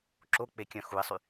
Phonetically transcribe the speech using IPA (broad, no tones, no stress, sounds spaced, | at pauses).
ǁ o k͡p e kʲ œ̃ x u ɪ̯ sˤ y